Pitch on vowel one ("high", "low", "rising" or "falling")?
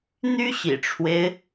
high